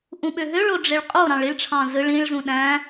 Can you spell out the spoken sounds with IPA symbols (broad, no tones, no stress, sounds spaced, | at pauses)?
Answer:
ʔ ũ ɓ ø ɦ ø ɭ o ɖ͡ʐ e ɭ qʼ o ɾ ɑ̃ ɭ i ɭ ʈ͡ʂʰ ɑ̃ z ɯ ɭ ĩ ɭ z ũ ɗ æ̃